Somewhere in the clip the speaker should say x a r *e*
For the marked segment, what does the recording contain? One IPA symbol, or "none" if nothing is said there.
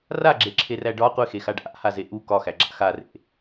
ḛ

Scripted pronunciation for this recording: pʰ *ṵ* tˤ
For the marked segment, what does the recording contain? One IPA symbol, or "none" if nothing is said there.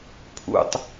ṵ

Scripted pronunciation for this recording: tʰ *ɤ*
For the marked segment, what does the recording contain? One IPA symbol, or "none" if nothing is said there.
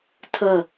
ɤ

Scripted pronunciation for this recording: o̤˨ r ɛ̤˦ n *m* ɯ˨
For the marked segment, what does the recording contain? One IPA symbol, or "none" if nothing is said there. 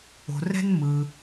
m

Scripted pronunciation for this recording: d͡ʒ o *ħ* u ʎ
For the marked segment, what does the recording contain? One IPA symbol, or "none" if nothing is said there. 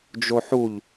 ħ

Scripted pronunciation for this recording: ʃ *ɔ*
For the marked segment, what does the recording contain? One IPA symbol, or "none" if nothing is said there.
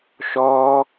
ɔː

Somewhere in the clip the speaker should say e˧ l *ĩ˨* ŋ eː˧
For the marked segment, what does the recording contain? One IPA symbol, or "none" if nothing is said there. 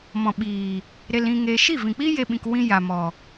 ĩ˧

